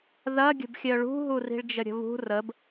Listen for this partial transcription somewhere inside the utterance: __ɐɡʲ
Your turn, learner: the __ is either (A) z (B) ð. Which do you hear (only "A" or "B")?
B